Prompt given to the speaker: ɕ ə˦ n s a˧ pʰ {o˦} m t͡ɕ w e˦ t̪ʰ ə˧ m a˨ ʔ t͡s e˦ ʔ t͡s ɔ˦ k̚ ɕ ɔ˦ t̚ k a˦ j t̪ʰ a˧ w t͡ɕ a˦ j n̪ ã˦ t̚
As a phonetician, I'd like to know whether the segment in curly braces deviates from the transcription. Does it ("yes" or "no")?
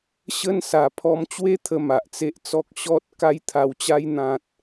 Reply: yes